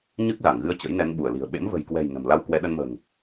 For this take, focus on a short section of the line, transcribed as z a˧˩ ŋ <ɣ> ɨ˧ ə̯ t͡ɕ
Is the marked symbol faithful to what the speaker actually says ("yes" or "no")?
yes